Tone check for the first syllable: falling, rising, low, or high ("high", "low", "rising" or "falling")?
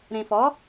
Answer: low